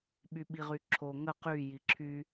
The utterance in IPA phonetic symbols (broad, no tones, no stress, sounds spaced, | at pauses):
ɓ y ɓ i ʁ y ǁʰ o ŋ ə q y j i ǁʰ y